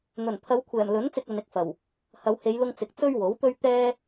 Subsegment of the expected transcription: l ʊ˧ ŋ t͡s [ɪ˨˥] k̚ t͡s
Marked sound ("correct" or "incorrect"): incorrect